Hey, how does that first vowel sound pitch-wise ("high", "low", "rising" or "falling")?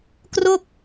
falling